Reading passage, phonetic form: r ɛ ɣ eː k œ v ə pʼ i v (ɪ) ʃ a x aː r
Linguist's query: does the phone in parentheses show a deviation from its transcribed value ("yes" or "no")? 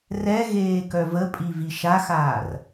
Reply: yes